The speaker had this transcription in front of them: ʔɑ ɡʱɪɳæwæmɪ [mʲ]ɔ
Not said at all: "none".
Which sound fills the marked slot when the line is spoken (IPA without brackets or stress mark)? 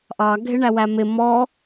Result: m